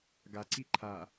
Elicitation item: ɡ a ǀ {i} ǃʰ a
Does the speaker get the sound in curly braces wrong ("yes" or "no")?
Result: no